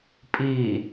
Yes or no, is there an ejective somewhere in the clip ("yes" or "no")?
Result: yes